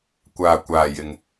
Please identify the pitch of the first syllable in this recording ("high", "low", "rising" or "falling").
low